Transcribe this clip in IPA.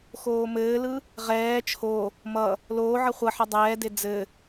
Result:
x oː m ɘː l ɯ | ʁ ɛː t͡ʃʰ o | m ʌ | l oː ʕ ʌ χʷ ʌ ħ ʌ dˤ ɛː d e d͡z ɘ

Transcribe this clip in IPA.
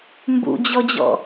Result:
m b ṵ d͡ʑ ɔ d͡ʑ ɔ̰

